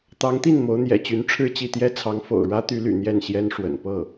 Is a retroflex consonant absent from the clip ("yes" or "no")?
no